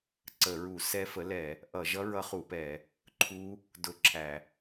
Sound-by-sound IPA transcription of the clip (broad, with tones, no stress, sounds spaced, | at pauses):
ǀ ə˧˩˧ ɹ u˧˩˧ s ɛ˦˥ f ə˩˥ l ɛ˧˩˧ | ʔ ʌ˧˩˧ ʒ ʌ˦˥ ɹ ʌ˦˥ χ u˧˩˧ p ɛ˧˩˧ | ǃʰ u˦˥ | d ʊ˧˩˧ ǁʰ æ˧˩˧